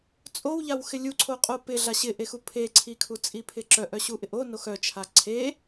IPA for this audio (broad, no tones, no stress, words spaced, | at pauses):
t͡sʼowʎaw xɪlʲuǀʰo qʼopɪ ɮaɕɪʔexu pʰeǀʰikʰu t͡sʼipʰɪǁœʔœ ɕuʔɪʔonox œt͡ʃʰa ǀʰe